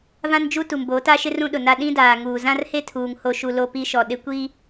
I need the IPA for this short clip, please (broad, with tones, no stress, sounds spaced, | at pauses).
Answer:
v ã˦ n d͡ʒ u˦ t u˨ m b o˨˦ t a˦ ʃ ɪ˦ r ũ˦ ɗ ʊ˨ n a˦ ɗ ĩ˦ d aː˨ ŋ uː˨ z ã˦ r h e˦ tʰ uː˨ ŋ h o˨ ʃ u˨ l o˦ p i˦ ʃ ɔ˨ ɗ ɪ˦ kʷ i˦